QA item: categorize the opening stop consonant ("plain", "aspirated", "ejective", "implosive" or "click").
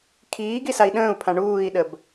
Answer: aspirated